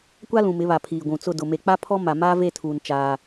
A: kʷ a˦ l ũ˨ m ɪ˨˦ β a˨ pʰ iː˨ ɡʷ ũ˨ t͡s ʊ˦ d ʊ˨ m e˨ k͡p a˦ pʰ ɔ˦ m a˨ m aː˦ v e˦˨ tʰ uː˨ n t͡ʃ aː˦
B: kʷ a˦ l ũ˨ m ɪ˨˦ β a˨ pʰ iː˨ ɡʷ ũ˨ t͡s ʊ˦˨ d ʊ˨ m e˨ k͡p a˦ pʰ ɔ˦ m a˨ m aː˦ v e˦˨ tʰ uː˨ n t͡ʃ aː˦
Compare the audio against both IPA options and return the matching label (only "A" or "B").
B